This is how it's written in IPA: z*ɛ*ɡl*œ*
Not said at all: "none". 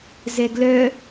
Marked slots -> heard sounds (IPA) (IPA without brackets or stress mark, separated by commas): ɛ, œ